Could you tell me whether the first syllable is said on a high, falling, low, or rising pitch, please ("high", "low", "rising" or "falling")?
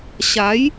rising